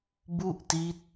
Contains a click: no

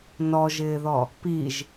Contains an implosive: no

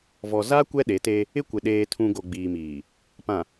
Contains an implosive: yes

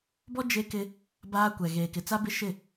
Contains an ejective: no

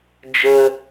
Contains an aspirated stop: no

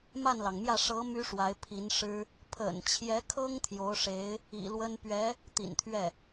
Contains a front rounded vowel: yes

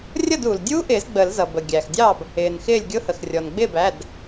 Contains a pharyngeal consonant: no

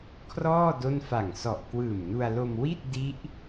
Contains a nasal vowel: no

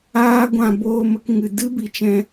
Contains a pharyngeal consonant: no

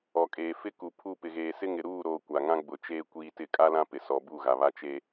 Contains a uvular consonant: no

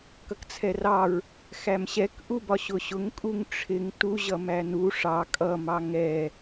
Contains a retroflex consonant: yes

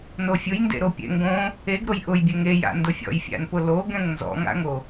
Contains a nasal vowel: yes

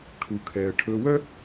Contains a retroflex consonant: yes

